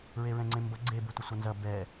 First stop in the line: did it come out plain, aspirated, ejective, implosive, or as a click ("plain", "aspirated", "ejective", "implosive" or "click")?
click